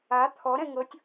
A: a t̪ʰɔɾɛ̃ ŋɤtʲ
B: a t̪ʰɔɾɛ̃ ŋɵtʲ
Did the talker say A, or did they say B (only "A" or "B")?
A